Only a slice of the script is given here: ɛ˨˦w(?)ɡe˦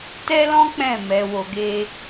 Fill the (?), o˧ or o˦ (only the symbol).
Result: o˧